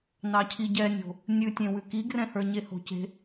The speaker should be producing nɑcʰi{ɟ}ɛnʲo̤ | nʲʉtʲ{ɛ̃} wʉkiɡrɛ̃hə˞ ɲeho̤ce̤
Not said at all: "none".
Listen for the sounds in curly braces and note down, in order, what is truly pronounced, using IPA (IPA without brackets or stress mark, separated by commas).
ɟ, ẽ